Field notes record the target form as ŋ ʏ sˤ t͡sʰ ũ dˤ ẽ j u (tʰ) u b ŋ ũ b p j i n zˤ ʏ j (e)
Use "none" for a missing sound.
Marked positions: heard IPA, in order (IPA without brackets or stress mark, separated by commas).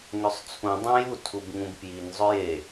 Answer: tʰ, e